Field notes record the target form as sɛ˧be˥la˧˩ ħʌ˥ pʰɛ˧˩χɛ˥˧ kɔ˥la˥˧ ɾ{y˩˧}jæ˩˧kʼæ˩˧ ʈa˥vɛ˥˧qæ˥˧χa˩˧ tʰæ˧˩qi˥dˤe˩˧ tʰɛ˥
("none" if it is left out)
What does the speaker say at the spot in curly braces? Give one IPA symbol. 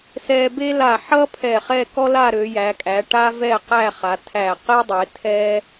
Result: ø˩˧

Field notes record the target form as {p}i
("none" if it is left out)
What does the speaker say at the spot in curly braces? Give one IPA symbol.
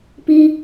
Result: p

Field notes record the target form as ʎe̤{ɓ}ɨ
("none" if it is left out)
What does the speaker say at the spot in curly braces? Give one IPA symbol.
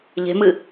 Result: m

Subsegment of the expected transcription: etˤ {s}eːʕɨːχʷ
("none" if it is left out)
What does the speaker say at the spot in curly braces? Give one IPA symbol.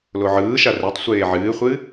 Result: sʷ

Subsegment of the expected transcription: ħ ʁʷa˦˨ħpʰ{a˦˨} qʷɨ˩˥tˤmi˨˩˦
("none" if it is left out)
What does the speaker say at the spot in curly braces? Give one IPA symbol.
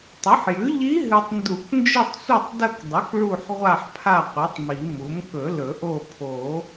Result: a˦˨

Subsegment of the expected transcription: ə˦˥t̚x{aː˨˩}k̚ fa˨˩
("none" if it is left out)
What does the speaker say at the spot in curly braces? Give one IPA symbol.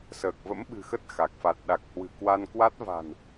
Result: a˨˩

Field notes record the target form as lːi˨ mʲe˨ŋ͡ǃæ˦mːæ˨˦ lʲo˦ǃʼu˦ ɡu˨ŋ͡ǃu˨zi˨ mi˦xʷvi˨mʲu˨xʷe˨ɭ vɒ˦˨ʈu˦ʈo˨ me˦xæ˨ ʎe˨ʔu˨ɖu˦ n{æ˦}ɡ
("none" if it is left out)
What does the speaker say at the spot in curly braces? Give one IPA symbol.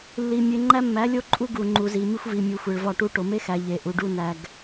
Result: æ˨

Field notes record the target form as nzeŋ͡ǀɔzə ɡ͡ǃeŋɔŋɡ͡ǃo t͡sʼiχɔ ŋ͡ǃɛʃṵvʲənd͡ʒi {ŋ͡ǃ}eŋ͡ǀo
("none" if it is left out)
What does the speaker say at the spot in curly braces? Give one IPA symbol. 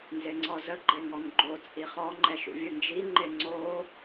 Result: ŋ͡ǃ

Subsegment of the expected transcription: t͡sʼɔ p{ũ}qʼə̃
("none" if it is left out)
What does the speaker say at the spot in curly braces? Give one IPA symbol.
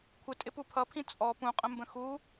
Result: ũ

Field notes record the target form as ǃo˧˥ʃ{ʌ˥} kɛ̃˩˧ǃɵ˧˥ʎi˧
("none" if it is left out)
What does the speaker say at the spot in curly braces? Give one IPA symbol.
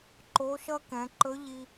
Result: ʌ˥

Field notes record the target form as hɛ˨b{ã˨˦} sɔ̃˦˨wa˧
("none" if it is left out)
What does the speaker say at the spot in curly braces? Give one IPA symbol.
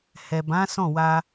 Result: ã˨˦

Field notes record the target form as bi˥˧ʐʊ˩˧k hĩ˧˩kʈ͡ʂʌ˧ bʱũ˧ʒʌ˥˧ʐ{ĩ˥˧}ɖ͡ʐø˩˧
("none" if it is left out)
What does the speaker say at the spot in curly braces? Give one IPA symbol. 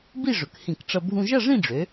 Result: ĩ˥˧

